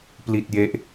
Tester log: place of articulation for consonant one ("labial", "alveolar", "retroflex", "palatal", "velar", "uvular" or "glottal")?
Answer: labial